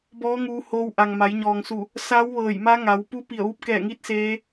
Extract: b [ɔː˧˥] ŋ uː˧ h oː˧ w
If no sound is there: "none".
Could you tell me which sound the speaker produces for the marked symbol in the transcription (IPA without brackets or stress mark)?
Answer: ɔː˧˥